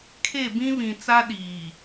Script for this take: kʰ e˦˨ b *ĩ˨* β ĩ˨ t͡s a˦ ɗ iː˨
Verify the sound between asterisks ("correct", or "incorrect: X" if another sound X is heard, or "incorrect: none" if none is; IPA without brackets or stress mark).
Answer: incorrect: ĩ˦